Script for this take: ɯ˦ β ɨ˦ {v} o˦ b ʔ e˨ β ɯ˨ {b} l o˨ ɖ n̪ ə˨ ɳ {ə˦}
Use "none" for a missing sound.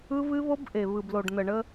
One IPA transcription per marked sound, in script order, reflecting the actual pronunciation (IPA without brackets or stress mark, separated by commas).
β, b, ə˦